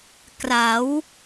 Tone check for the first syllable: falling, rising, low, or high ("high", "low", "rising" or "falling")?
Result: rising